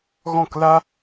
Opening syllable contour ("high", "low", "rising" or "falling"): falling